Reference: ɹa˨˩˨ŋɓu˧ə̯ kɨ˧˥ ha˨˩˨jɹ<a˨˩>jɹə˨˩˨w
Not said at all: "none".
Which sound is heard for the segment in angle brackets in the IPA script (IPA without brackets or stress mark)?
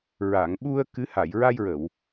a˧